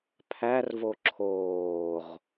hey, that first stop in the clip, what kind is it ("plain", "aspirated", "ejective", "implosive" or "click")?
aspirated